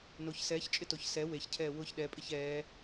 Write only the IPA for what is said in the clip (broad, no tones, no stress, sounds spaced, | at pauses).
n o ç s ɛː ç t͡ʃʼ ɪ t o ç s ɛ w e ç cʰ ɛː w ʊ ç ɗ ɛ pʼ ɪ ç ɛː